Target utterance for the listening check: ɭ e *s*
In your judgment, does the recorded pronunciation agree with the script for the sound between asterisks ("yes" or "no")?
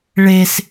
yes